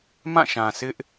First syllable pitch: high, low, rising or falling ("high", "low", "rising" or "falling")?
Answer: falling